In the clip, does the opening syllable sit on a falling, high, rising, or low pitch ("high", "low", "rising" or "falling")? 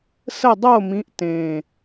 falling